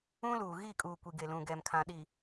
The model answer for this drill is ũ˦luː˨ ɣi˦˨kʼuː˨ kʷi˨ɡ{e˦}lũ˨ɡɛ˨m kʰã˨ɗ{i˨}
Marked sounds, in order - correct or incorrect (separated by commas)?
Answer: incorrect, correct